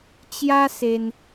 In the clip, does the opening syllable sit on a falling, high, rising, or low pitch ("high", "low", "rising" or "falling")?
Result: high